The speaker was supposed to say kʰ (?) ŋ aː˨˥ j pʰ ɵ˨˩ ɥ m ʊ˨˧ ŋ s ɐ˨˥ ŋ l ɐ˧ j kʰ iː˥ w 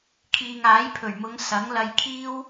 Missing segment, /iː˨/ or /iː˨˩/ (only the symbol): iː˨